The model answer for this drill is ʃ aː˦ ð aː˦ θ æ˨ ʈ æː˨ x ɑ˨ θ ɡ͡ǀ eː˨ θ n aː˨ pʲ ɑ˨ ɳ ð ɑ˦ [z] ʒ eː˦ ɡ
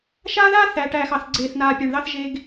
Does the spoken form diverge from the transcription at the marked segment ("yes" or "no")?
yes